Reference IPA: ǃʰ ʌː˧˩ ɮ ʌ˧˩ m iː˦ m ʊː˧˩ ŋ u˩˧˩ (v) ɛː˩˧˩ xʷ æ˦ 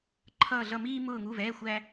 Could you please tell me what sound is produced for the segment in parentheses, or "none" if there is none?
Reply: v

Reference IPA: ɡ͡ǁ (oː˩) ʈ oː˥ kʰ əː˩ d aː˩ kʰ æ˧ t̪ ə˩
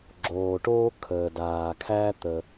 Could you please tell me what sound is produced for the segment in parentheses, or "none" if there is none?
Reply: oː˩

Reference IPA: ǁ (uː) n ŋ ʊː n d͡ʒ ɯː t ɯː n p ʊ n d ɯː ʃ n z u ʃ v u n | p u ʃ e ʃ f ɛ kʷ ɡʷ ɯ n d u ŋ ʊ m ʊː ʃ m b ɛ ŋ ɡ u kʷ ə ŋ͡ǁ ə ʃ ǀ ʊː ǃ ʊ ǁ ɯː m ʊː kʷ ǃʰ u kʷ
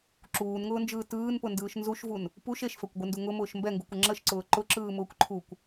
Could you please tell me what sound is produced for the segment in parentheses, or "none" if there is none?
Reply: uː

